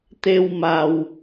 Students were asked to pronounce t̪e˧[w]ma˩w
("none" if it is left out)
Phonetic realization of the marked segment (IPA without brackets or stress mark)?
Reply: w